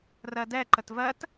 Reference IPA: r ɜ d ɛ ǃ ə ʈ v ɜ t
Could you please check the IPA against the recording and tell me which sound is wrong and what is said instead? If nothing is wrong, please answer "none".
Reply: ʈ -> t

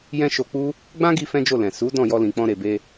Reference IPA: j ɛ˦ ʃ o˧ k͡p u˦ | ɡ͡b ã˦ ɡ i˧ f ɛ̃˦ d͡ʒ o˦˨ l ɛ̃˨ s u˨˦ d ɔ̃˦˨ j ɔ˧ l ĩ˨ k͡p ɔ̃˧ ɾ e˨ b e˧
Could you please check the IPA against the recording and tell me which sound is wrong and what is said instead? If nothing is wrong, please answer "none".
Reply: ɛ˦ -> ɛ̃˦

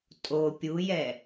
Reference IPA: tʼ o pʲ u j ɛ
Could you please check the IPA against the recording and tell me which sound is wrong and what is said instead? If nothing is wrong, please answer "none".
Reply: none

